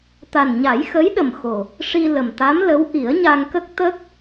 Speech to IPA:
t̪a˨˩nɲa˨˩˦jxə˧˥jɗə˨˩m xo˨˩ | ʂi˧ lə˨˩mt̪a˧˥mlə˧˥w ʔi˨˩˦ə̯ɲa˧ŋkə˦˥k̚t̪ə˦˥k̚

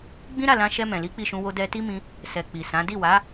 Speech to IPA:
ɡ͡bĩ˦ ɾa˦˨lã˧ ʃɛ˧ mɛ̃˨li˨˦k͡pi˦˨ʃũ˧ wo˧dɛ˧ti˦mĩ˧ | sɛ˨ k͡pi˨sã˨˦ di˦˨wa˨˦

